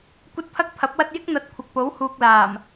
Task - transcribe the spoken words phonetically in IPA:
kʷ ɐ˥ t̚ pʰ ɐ˥ k̚ pʰ ɐ˨˥ p̚ w ɐ˥ t̚ j ɪ˥ k̚ n̪ ɐ˨˥ t̚ kʷʰ ɐ˨ k̚ p o˨˥ w h uː˨ k̚ l aː˨˩ m

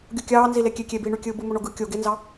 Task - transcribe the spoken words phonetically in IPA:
ɡʲ u kʲ ɑː n z i l e kʲ e kʲ e b iː ɳ y kʲ ɯː b ɯ m o ɳ o ɡ ɯ kʲ o ɡ e n z ɑ

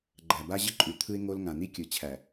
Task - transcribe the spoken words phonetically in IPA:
ɡ͡ǃ æ˨ b a˦ ʑ ə˦ ǃʼ ʉ˨ t̪ʰ ɯ˦ ɪ̯ ŋ o˦ l ŋ ã˨ n̪ i˦ kʲ ɯ˨ t͡ɕʰ æ˨

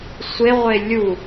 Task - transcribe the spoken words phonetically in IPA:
sʷ e ʁʷ e lʲ u

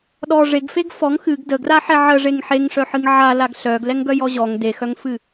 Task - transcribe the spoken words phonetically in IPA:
ɗ ɔ ʐ e ɡ f e ɡ f ɔ ŋ x ɨ ɡ d ə ɡ r a ħ ɛ ʕ ə ʐ e ŋ ħ e ŋ ʂ œ ħ ɨ ŋ ʕ a l a ɡ ɬ œ ɡ l ɛ ŋ ɡ œ j ɔ ʑ ɔ ŋ d e x œ ŋ f ɨ

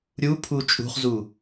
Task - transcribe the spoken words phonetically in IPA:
ɾʲ u pʰ u t͡ʃʼ ṳ χ z u

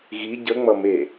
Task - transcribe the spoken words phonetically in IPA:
ɣ i ɟ ə ŋ͡m ʌ m e

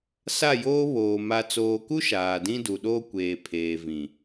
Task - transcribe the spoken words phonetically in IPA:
s a˦˨ j oː˦ β oː˨ m a˨ t͡s oː˨ k u˦ ʃ aː˨ d ĩ˦ d u˨ ɗ oː˦ kʷ eː˨ pʰ eː˨ v ĩ˨

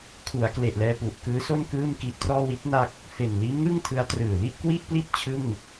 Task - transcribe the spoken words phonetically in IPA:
kʰ u˩˦ a̯ k l e˨˩ ʔ l ɛː˧ p u˨˩ ʔ k ɯː˦˥ s o˥˩ n k ɯː˥˩ m k i˦˥ ʔ t r ɔː˥˩ w i˦˥ t̚ n a˦˥ k̚ | f e˨˩ n l iː˦˥ m ŋ ɯ˥˩ ŋ tʰ ɯ˦˥ a̯ t r ɯː˨˩ l i˥˩ ʔ k w i˥˩ ʔ p l i˥˩ t̚ t͡ɕʰ ɯ˥˩ ŋ

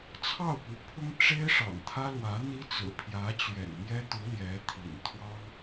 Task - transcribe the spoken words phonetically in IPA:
t͡sʰ ɑ˥˩ ʊ̯ p u˧˥ pʰ ʊ˥ ŋ ʈ͡ʂ e˥ ɪ̯ ʂ ɑ̰˨˩ ŋ t̪ʰ ä˥ l w ä˧˥ n̪ i˥ t͡s ɹ̩˨˩ pʰ j ä˧˥ t͡ɕ ɥ ɛ̰˨˩ n m j ɛ˥ t̪ u˧˥ l j ɛ˧˥ t̪ʰ ḭ˨˩ n t̪ʰ w ɑ˥ ŋ

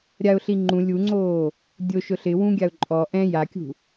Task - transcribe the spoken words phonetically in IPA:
ɾʲ a ʊ̯ ɬ i ŋ͡ǃ ũ lʲ u ŋ͡ǀ oː | dʲ o ʃ ʊ ɬ ɪ w ũ ɡʲ a ʊ̯ ǃʼ ɔ ʔ ɛ̃ j a kʲ ṳ

